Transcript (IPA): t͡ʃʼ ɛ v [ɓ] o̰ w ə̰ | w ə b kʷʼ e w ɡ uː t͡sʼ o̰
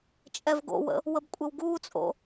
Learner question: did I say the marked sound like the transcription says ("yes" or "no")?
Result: no